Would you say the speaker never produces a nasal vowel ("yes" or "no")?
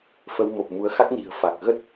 yes